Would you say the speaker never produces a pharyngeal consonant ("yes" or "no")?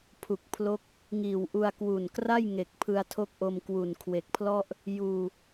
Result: yes